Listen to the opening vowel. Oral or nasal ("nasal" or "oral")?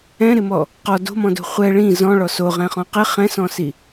nasal